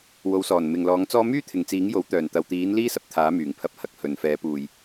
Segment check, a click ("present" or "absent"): absent